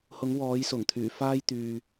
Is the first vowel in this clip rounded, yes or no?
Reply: yes